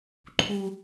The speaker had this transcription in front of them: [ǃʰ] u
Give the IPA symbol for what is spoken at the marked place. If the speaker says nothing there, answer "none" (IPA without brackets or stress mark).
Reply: ǃʰ